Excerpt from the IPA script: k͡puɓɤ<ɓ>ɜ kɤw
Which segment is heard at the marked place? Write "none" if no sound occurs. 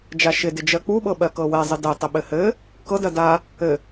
ɓ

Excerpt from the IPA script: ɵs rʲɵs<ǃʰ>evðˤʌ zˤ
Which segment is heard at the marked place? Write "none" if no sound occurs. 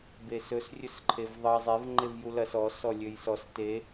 ǃʰ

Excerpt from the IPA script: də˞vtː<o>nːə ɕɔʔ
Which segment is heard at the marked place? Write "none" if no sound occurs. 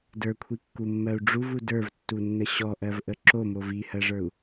u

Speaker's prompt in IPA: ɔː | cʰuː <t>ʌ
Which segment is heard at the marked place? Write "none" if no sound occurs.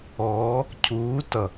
t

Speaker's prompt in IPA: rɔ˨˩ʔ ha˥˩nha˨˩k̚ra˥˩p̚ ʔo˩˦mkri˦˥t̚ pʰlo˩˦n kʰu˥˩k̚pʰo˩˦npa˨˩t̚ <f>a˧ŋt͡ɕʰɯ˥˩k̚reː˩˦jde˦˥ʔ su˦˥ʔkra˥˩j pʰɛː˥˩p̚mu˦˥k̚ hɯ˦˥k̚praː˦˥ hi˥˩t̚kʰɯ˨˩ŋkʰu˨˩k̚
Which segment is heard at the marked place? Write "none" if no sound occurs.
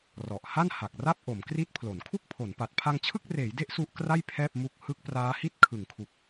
pʰ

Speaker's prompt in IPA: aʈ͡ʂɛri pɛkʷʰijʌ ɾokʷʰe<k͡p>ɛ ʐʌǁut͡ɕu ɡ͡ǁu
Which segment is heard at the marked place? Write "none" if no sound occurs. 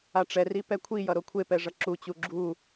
p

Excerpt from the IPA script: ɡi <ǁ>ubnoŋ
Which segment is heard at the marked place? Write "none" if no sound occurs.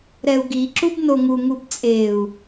ǁ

